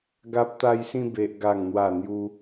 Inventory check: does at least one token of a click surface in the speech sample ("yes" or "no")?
no